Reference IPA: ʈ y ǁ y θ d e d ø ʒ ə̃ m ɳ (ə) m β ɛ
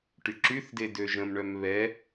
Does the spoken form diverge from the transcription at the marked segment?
yes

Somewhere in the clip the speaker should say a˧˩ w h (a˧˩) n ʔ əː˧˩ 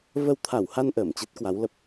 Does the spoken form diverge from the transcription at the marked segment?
yes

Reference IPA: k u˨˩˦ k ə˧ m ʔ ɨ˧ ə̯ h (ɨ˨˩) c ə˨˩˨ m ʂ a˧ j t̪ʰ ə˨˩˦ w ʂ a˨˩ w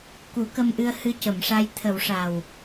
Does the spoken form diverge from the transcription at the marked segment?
yes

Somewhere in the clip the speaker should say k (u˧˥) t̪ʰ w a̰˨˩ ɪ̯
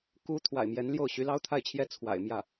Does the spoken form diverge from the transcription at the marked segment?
no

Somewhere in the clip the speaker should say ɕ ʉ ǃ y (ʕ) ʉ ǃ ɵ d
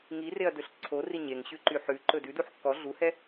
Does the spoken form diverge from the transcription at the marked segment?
yes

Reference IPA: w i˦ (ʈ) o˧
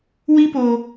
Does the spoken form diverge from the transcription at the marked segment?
yes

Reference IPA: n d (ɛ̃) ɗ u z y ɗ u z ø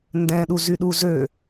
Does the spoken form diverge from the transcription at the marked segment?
no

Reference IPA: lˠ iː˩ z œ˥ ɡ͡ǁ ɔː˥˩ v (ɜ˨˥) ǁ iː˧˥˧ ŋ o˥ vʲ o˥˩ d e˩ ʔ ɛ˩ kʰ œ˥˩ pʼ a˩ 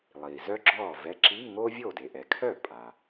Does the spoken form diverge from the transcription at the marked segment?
yes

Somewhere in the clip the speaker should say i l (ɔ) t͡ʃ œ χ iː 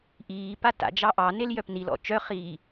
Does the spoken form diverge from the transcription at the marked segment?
yes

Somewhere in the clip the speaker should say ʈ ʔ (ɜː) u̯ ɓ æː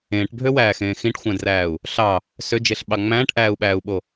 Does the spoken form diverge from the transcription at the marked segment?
yes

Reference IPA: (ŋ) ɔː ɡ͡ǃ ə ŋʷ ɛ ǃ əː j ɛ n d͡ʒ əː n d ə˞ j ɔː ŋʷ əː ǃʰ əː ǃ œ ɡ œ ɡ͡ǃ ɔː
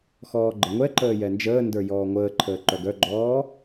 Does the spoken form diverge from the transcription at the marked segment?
yes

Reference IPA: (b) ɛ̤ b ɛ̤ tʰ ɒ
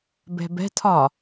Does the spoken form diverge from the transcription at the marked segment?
no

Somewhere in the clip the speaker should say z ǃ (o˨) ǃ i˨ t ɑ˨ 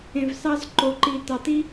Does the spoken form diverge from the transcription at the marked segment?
no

